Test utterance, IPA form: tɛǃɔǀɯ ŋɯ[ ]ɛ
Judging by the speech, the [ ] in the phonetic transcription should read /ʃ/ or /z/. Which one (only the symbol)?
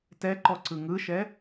ʃ